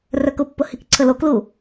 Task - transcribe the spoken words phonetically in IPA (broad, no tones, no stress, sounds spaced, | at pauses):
r œ k ʊ pː ʊ h i k ǀʰ ə l o k l u